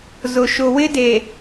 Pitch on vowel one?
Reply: low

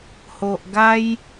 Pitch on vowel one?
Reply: low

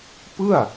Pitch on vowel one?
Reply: falling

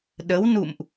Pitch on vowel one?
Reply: rising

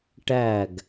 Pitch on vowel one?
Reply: falling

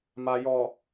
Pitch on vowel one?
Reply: low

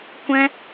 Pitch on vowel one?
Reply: high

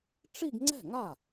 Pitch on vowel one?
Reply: falling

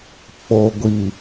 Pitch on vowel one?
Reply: low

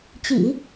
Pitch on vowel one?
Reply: low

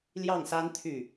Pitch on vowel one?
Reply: falling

